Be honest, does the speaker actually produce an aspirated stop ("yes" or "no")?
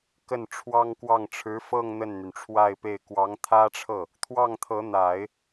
yes